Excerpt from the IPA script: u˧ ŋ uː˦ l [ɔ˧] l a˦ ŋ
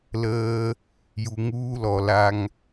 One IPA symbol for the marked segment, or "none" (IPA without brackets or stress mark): ɔ˧